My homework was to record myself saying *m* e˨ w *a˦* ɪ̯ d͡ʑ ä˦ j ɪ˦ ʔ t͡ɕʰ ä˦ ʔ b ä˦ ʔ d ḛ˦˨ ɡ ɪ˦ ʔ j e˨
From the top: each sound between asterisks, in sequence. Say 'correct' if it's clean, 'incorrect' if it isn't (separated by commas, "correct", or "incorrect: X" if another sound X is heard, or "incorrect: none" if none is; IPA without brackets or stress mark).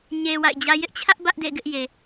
incorrect: ɲ, incorrect: a̰˦˨